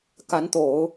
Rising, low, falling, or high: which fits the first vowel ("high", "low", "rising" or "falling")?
rising